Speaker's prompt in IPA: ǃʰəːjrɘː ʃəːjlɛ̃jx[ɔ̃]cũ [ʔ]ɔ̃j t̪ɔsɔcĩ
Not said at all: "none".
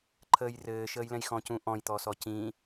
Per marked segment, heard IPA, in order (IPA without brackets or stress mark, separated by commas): ɔ̃, ʔ